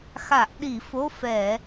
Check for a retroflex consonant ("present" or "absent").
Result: absent